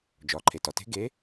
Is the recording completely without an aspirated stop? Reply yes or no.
no